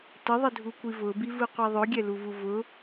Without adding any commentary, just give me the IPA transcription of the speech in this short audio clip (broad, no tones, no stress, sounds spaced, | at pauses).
t ə ðˤ ə dʱ u kʷ i v ʊ b i v ɯ qʷ i ðˤ ɵ ɡʲ ɛ l u v u v ʊ